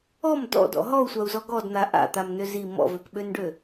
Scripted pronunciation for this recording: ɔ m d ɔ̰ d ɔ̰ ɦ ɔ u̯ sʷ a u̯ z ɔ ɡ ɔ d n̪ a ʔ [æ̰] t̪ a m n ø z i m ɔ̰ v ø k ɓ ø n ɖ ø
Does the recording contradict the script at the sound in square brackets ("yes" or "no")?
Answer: yes